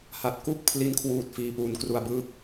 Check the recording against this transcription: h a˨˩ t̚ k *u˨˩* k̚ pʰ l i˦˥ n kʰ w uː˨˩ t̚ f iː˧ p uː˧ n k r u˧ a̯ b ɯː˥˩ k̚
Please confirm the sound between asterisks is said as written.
no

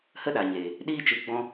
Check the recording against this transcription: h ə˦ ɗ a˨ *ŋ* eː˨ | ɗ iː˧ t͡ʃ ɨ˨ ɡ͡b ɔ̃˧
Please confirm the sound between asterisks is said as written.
no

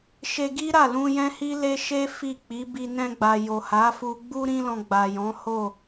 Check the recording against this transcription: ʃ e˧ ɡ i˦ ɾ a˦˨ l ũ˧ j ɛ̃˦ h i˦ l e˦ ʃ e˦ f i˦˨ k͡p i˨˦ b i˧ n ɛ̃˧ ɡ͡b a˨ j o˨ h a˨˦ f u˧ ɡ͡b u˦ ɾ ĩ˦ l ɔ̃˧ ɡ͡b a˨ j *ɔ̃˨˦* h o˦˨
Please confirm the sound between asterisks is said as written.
yes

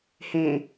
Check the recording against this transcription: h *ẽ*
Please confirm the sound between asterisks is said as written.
yes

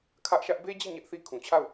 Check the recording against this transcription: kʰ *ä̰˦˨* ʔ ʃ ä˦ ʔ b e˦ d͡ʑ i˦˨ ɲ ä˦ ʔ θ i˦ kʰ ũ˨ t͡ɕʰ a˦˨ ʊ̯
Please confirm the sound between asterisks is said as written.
no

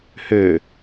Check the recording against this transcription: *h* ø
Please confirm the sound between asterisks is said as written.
yes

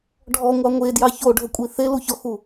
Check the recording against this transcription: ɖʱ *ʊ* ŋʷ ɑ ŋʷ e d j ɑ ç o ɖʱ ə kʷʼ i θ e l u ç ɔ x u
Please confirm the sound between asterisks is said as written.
no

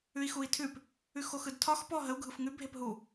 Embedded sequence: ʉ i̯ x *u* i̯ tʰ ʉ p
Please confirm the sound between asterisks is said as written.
yes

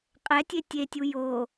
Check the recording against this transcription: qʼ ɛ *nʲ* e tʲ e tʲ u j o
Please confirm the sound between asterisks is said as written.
no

